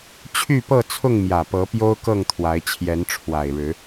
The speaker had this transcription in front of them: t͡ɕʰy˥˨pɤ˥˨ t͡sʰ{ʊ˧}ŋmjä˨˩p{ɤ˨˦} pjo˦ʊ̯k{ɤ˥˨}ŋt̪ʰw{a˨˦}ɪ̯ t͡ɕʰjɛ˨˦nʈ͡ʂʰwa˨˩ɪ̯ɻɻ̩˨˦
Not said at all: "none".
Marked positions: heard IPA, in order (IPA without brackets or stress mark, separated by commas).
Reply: ʊ˥˨, ɤ˨˦, ɤ˥˨, a˨˦